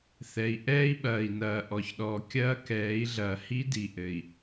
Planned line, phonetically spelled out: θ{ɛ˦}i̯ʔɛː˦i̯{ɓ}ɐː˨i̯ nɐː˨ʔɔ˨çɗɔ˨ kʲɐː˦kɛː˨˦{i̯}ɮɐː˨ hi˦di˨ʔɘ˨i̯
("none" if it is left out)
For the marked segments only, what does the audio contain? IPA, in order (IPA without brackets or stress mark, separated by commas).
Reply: ɛ˨, ɓ, i̯